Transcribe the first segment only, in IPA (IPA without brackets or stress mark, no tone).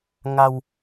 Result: ŋ